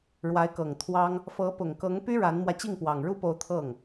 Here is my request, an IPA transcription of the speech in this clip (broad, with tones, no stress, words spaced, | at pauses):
ɻwa˧˥ɪ̯kɤ˨˩ŋ t̪ʰwɑ˥ŋ | fɤ˧˥pʊ˨˩ŋkɤ˧˥ŋpy˥ ɻa˧˥nmwä˧ t͡ɕi˥˩ŋpwɑ˨˩ŋɻu˥po˧˥ʊ̯ t̪ʰɤ˥˩ŋ